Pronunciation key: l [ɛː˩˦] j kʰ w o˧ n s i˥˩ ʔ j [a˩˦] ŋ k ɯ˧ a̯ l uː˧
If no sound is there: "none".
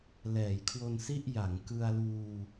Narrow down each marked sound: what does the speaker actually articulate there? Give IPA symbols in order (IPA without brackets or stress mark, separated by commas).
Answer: ɛː˩˦, a˩˦